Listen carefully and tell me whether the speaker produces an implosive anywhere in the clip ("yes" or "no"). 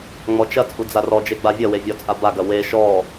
no